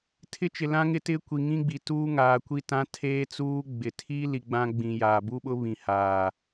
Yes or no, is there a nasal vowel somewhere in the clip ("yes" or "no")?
yes